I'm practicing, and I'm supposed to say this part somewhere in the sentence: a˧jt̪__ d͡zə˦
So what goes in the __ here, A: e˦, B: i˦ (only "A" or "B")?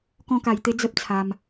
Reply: A